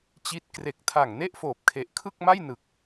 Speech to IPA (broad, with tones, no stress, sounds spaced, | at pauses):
t͡ɕ i˦˥ t̚ k r e˨˩ k̚ tʰ a˨˩ ŋ n e˥˩ ʔ f oː˨˩ p̚ kʰ e˨˩ ʔ kʰ ɯ˥˩ k̚ m a˥˩ j n ɯ˨˩ k̚